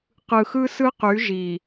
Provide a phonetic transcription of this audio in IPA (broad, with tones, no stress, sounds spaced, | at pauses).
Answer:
q ɯ˨ x ɯ˦ s ɯ˦ q y˨˦ ʒ i˨